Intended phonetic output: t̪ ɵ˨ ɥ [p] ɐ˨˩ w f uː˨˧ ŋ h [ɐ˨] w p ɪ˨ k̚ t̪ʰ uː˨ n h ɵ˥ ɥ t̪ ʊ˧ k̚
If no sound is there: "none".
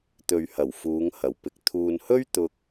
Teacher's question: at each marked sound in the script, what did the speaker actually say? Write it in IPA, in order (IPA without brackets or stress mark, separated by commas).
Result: h, ɐ˨˩